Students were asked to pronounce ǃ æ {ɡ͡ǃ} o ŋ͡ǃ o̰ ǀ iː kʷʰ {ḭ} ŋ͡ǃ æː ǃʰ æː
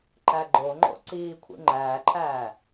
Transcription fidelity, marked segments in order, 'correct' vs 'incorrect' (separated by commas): correct, correct